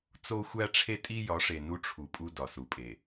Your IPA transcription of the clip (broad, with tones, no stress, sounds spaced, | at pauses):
t͡s o˦ xʷ æ˦ ʈ͡ʂʰ e˦ tʼ i˦ j ɒ˨˦ ʂ e˨ n u˦ ʈ͡ʂʰ u˨ pʼ u˦ d ɒ˨ s u˨ pʼ e˨